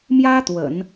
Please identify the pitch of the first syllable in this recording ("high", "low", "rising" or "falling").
high